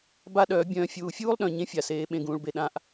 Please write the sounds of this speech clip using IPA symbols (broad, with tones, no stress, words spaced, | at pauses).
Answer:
ba˦ɗœː˨˦ bʲœ̃ː˧ fʲuː˨fʲuː˦lˠɗœ̃˨ ɲẽ˦fʲa˨seː˨˦ ɓẽ˧ɡũː˧ɭbe˧ ɗã˦ʔ